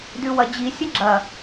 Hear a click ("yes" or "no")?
yes